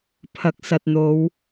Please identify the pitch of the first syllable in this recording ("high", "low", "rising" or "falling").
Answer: low